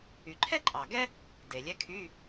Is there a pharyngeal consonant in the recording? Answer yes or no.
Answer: no